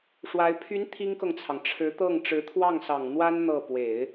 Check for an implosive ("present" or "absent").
absent